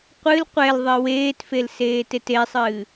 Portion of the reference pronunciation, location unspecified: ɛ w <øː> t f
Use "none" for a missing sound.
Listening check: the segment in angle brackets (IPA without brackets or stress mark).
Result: eː